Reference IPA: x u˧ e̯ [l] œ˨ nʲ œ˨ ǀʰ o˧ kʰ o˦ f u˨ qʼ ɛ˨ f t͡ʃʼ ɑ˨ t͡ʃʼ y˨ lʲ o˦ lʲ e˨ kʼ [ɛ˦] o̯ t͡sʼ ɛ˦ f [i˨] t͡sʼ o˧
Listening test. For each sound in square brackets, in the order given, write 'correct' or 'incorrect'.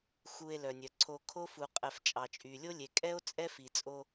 correct, correct, correct

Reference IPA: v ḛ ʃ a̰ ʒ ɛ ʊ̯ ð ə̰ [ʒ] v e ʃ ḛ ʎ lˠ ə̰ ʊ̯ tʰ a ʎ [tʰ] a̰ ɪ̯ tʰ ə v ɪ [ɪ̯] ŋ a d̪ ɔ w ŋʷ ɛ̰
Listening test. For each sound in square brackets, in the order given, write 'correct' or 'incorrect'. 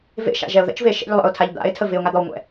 incorrect: t͡ʃ, incorrect: d̪, incorrect: ʊ̯

